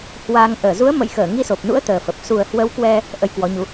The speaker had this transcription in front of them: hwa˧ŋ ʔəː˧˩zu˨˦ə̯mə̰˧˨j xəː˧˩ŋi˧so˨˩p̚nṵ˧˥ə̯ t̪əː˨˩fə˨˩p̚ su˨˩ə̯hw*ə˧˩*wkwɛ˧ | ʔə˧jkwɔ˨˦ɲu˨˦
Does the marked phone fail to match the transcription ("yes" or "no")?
yes